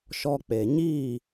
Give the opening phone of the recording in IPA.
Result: ʃ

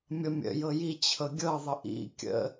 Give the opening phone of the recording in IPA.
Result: mʲ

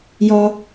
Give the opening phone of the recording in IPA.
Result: j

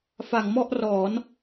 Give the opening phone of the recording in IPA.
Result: f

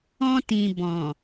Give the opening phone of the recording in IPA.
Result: ɔ̃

